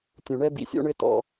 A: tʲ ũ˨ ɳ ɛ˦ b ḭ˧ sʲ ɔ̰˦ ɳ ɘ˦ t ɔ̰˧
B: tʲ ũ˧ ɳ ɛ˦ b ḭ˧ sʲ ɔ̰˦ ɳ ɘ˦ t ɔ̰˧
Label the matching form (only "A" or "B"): A